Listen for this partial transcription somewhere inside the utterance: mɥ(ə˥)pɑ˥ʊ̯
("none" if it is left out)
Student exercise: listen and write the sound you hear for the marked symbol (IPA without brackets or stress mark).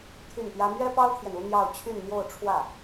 ɛ˥